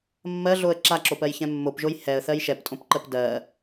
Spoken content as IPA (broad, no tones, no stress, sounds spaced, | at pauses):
mː ɜ ɮ o ə̯ ǁ a ǁ o p ɜ j ç ɛ̃ mː o p ʒ o j h ɛ ə̯ θ ɜ j ʃ ɛ p tʼ õ p ǃ ɜ p d ɜ